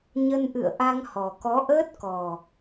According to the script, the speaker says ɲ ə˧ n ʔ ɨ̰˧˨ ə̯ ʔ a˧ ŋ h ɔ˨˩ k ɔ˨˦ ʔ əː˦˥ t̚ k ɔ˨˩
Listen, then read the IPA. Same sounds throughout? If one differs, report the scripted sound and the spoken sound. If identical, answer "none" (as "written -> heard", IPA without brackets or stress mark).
none